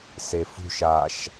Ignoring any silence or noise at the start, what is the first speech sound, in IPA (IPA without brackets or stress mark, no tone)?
s